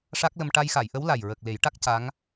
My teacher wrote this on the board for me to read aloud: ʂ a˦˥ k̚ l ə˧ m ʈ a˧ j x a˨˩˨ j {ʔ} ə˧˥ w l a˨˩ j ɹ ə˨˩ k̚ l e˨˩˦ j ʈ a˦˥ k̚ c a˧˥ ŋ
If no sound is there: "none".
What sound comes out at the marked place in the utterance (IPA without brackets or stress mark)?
ʔ